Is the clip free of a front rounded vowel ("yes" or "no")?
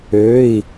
no